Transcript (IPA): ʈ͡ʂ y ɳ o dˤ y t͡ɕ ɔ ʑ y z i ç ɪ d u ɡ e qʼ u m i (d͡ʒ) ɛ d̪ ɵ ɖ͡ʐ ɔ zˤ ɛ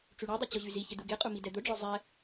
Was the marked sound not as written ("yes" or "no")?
yes